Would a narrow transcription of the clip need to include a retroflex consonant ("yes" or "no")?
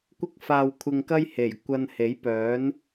no